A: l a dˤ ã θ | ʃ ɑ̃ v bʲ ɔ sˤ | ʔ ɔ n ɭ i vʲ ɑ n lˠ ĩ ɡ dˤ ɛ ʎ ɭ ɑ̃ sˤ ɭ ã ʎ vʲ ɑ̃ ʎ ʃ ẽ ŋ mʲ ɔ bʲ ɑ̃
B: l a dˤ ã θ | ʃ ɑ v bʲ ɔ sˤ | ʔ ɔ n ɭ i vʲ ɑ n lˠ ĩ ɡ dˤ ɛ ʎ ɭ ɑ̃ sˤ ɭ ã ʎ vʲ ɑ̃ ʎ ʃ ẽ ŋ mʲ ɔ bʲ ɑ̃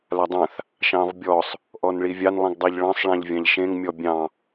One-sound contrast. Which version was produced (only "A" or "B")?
A